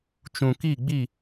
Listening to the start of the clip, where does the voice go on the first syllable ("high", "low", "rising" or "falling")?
low